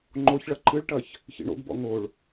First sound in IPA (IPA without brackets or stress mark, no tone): ŋ͡ǃ